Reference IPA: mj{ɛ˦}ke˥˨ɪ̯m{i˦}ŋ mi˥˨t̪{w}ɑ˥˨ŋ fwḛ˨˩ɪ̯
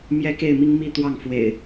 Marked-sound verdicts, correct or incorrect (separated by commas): correct, correct, correct